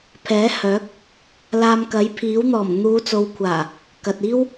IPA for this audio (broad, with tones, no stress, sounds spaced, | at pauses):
pʰ ɛː˨˥ h œː˨˥ k̚ | l aː˧ m k ɐ˨˥ j pʰ iː˨˥ w n̪ ɔː˨˩ m n̪ uː˨˧ t͡s o˨ w kʷʰ aː˨˩ | k ɐ˨ t̚ iː˥ w